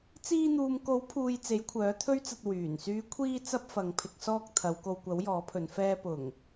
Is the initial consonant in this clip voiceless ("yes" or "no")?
yes